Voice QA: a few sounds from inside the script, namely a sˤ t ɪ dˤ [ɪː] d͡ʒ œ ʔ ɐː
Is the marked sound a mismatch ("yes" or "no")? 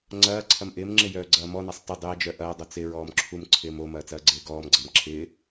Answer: no